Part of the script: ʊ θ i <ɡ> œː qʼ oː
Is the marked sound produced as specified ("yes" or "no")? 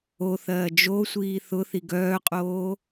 yes